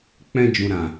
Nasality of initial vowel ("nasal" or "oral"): nasal